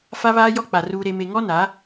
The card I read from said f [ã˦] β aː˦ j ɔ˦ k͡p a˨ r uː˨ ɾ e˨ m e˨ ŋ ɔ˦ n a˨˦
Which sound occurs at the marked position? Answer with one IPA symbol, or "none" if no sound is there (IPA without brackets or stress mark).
a˦